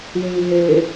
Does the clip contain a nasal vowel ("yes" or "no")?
yes